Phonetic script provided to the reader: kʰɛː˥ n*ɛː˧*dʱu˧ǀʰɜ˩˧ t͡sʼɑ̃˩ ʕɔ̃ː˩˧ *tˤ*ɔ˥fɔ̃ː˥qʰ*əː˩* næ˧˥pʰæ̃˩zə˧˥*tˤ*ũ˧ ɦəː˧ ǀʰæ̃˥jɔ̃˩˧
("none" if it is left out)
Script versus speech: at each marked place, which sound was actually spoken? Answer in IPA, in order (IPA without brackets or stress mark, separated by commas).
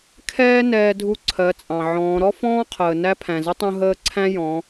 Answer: ɛː˧, ɾ, əː˩, tˤ